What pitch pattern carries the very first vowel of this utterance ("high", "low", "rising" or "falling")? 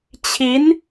rising